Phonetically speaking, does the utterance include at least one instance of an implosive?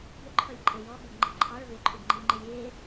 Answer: yes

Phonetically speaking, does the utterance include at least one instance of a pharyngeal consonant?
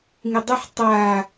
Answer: yes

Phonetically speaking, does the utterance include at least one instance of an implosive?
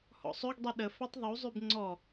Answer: yes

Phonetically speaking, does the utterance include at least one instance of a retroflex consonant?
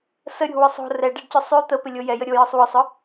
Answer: yes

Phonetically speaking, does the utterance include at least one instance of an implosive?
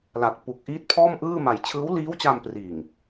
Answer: no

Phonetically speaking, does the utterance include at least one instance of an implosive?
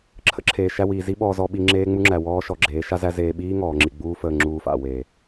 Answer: yes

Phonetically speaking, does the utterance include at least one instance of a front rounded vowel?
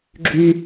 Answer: yes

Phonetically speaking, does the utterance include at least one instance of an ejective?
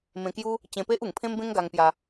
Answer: no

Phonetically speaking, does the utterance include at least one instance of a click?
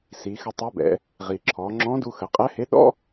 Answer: yes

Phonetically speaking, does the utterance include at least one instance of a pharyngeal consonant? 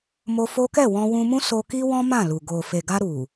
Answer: no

